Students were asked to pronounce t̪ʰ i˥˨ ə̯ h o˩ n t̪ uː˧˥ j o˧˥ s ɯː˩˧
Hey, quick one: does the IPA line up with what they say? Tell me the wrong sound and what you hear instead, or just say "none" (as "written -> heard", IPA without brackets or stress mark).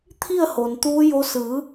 none